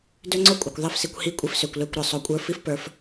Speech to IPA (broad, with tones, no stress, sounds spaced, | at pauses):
d ø˦ ŋ͡ǀ o˦ kʷʼ ɐ˨ kʷ ðˤ i˦˨ f s i˧ kʷ h i˦ kʷʼ i˧ f s ø˨ kʷ l ø˦˨ kʷ ɾ ə˞˨ sˤ o˧ kʷʼ ə˞˧ f i˦ f p ə˞˧ f